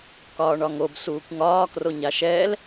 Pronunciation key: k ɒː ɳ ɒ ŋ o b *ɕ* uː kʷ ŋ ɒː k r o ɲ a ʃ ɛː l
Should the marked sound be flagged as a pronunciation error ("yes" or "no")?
yes